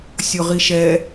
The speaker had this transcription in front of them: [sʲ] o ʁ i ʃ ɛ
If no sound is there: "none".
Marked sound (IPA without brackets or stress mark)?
sʲ